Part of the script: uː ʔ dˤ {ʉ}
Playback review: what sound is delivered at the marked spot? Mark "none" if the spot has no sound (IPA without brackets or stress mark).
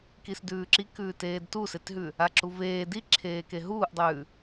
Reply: ʉː